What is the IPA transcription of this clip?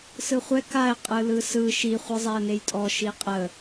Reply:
sɯχʷɛ kaɪ̯ qʼɯlɯsɯ ʃi χʷɯzˤɛə̯nejtʼɔ ʃiqʼə

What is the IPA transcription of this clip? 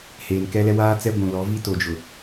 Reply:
heː˨nkɛ˦lɛ˦ waː˦t͡sɛ˦ ɡʷũ˨lɔ˨˦ vi˦to˨d͡ʒʊ˨

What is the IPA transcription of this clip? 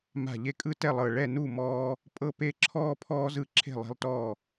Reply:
ma̤˧˩ʎe˦kʼɯ˦ tɛ˥˨lˠɤ˧˩ ɭɛ˥˨ nu˥˨mɔː˦ | pʼɤ˦pe˦ ǁʰɔː˦pʰɔː˦ zɯ˥˨ǁʰe̤˥˨lˠe̤˦lˠtɔː˥˨

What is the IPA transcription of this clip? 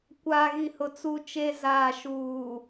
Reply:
kʷaː˨ɣi˨hʊ˨ t͡su˦t͡ʃe˦ zaː˨ʃuː˨

